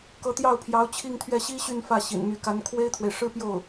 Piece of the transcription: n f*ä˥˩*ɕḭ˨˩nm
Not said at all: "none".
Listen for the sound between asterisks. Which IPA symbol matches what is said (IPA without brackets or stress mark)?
ä˥˩